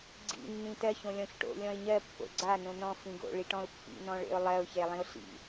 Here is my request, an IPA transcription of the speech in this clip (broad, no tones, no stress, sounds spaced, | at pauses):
ɡ͡ǀ ḭ nː ĩ t ɜ ç õ lʲ ɔ̃ ç ʈ o̰ lʲ ɔ̃ ɪ̯ ɲ ɜ pː o̰ ɡ͡ǀ a n õ n ɔ̃ f ĩ ɡ o̰ ɭ i ʈ ɔ̃ ʊ̯ pː ḭ n ɔ̃ ɭ ḛ ʊ̯ lˠ ɜ ʊ̯ ç e lˠ ĩ ʊ̯ ɬ ḭ